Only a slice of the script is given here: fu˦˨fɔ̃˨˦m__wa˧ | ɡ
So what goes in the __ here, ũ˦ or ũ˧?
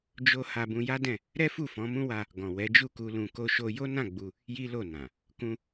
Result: ũ˦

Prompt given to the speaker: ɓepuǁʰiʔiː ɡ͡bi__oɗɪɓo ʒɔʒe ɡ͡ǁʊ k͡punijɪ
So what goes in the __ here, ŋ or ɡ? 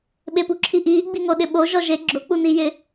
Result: ŋ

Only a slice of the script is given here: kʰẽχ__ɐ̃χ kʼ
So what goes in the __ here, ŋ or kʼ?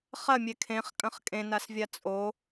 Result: kʼ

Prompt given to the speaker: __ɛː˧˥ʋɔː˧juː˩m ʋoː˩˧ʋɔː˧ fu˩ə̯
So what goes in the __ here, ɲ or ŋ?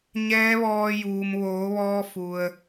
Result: ɲ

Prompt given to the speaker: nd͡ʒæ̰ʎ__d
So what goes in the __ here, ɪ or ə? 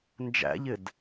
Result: ɪ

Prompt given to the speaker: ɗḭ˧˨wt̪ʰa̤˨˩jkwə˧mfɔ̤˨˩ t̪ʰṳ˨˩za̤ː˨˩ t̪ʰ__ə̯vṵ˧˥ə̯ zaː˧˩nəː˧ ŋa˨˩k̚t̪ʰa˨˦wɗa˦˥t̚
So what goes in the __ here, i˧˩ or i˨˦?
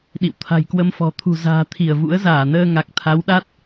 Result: i˧˩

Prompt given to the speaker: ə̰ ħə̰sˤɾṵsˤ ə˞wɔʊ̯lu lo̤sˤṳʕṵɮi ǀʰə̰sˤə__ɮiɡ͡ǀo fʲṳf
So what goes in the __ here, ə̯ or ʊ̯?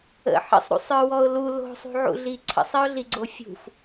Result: ʊ̯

